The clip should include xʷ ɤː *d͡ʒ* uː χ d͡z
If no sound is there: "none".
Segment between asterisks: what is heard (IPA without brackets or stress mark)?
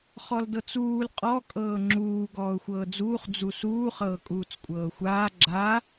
d͡z